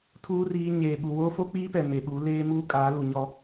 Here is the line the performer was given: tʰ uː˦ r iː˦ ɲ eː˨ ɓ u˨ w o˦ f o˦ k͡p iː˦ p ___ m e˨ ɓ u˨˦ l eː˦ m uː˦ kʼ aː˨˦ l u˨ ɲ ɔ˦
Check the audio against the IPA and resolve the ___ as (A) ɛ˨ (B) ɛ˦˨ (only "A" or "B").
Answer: A